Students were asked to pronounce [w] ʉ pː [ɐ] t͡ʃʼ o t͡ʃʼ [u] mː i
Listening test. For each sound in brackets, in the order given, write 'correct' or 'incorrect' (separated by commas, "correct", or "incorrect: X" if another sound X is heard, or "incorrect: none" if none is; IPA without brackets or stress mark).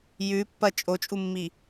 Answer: incorrect: j, correct, correct